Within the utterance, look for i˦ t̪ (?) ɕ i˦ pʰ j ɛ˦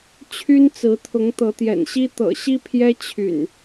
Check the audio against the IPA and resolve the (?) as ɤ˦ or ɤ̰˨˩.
ɤ̰˨˩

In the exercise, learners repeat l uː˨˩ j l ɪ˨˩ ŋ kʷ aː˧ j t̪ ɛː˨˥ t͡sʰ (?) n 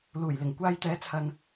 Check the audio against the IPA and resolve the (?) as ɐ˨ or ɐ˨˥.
ɐ˨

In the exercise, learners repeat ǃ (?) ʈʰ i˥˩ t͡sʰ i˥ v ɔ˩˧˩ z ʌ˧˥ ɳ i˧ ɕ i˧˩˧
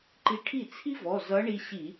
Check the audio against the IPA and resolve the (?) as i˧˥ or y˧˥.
i˧˥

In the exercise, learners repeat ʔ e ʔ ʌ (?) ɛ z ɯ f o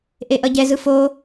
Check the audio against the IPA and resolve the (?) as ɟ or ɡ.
ɟ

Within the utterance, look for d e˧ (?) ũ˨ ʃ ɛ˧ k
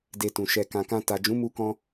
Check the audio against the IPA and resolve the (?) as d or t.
t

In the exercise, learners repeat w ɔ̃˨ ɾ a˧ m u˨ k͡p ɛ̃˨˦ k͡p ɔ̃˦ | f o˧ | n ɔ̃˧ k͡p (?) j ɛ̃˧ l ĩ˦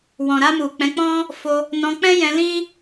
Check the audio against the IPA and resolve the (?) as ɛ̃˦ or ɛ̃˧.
ɛ̃˦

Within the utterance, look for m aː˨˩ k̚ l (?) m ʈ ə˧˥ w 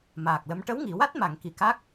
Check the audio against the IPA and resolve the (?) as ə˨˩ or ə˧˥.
ə˧˥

